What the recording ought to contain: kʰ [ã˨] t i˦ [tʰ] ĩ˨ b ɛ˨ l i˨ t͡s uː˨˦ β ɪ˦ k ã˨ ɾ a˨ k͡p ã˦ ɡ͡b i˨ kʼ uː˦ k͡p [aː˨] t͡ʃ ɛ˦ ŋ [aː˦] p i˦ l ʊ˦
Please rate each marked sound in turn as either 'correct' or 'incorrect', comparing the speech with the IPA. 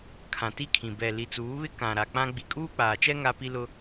correct, incorrect, correct, incorrect

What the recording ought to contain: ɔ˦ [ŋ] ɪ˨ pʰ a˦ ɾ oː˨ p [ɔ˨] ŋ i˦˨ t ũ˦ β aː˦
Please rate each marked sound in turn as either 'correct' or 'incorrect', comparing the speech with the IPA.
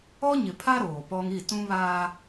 incorrect, incorrect

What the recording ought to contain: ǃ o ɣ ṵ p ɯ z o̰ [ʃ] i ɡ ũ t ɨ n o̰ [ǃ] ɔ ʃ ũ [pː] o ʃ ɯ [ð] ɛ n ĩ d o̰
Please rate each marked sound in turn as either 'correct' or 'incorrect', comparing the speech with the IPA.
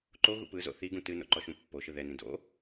incorrect, correct, correct, correct

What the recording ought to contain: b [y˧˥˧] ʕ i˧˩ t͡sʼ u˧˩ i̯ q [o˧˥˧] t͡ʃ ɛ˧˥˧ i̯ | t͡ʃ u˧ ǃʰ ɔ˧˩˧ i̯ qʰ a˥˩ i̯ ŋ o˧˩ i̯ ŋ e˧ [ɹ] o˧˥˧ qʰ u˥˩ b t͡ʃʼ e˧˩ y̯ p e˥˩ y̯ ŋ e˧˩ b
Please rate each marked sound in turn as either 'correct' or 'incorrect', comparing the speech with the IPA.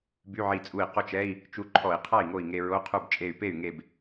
correct, incorrect, correct

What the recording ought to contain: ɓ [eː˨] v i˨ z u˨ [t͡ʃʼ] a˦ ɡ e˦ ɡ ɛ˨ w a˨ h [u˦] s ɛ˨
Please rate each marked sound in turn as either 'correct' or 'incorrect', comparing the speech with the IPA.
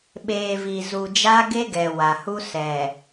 correct, incorrect, correct

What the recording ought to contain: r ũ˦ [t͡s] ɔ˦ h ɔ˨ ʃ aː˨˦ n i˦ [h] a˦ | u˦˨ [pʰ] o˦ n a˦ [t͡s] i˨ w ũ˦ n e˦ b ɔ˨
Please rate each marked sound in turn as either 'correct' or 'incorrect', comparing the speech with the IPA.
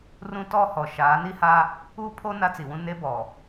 incorrect, correct, correct, correct

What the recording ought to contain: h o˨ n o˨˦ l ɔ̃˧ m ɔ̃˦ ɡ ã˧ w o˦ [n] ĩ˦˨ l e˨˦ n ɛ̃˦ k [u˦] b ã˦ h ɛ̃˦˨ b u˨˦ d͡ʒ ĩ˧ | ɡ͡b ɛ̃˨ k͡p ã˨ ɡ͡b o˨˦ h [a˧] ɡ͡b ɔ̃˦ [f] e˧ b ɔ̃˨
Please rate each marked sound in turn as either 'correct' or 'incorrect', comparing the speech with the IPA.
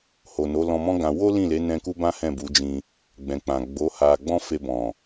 incorrect, correct, correct, correct

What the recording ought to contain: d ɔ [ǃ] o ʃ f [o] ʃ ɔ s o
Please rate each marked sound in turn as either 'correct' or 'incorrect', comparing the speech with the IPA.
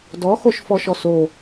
incorrect, incorrect

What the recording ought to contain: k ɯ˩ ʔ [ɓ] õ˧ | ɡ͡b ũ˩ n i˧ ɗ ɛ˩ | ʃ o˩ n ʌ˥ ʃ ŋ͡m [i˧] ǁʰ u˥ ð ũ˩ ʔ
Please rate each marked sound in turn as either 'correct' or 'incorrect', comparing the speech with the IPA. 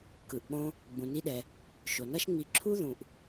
correct, correct

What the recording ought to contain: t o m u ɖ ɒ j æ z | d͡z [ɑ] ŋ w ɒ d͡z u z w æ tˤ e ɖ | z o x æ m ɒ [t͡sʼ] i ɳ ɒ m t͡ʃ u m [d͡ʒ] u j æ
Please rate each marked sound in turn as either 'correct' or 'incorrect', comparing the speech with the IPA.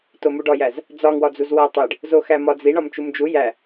incorrect, incorrect, correct

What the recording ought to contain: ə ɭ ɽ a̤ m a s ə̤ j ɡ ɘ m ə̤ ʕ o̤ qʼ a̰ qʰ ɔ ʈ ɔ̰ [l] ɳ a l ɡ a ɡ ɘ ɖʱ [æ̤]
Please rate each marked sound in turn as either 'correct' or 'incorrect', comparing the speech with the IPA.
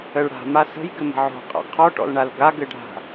correct, incorrect

